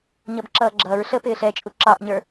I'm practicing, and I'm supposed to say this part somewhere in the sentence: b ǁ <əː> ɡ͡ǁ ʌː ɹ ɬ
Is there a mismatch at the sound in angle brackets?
yes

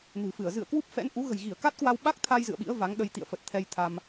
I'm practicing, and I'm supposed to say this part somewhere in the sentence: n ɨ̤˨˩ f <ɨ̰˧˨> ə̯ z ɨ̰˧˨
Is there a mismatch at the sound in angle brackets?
yes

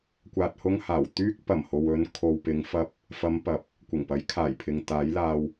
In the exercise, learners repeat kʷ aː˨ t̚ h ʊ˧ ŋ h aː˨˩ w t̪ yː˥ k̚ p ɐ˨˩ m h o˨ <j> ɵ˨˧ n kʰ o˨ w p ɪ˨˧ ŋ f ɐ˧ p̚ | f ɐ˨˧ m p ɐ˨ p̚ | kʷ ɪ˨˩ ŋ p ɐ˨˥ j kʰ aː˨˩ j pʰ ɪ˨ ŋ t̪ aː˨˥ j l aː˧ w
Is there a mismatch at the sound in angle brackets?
yes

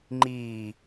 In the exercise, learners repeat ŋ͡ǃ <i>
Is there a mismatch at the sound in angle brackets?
yes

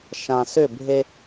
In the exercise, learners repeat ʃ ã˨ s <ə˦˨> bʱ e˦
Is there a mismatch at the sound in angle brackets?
yes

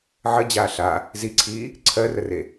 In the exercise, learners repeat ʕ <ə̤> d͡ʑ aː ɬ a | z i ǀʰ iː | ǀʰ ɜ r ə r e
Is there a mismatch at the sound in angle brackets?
yes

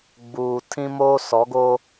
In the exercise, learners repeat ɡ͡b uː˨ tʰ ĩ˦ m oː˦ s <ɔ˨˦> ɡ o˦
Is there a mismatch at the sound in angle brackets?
no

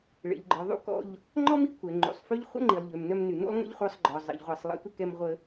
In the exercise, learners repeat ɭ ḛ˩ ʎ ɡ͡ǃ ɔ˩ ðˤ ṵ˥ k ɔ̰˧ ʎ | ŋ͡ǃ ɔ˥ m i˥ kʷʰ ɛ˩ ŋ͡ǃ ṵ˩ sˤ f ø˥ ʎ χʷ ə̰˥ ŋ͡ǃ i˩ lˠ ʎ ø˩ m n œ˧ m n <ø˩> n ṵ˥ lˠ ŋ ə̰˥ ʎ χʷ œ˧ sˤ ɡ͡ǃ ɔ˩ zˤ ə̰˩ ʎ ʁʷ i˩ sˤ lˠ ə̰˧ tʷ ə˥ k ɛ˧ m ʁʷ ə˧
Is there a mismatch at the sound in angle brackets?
yes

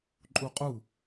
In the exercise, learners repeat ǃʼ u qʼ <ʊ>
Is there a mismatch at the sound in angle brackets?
yes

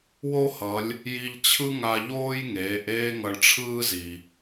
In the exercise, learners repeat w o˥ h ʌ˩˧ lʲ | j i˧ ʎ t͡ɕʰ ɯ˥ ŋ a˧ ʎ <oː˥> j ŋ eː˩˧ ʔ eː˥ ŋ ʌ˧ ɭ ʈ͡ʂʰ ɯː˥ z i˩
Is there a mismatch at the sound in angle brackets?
no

